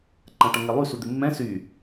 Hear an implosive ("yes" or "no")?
no